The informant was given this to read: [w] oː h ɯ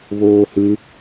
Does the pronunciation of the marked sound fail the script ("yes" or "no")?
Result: yes